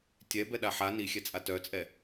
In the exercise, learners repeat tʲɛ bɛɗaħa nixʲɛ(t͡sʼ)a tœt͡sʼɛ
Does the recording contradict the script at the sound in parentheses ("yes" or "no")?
no